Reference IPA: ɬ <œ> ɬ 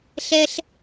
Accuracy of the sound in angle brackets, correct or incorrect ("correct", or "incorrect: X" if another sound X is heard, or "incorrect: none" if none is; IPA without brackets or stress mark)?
incorrect: ɛ